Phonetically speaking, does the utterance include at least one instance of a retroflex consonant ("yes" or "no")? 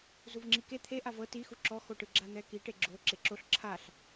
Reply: yes